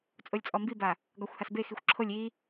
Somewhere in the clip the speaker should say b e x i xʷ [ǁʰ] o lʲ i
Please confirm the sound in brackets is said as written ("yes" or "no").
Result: yes